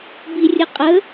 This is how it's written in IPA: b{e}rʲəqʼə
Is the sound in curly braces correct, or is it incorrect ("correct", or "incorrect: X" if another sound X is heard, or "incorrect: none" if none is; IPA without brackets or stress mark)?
incorrect: i